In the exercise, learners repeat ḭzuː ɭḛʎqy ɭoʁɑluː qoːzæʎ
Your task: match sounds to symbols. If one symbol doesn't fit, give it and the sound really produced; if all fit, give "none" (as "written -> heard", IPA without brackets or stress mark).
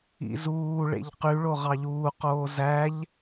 l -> ʎ